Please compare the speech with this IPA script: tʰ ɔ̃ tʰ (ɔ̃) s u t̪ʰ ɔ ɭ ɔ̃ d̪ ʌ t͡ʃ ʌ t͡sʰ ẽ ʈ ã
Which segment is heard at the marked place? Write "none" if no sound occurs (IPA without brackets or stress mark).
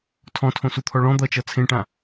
õ